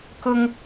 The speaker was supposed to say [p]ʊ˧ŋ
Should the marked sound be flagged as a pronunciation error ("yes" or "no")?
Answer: yes